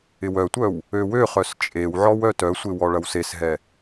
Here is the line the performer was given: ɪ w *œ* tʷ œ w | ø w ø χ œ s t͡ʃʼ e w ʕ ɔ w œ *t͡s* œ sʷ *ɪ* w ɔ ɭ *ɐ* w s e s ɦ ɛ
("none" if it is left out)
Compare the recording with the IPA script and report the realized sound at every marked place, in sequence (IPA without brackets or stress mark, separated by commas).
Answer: œ, t, ɪ, ɐ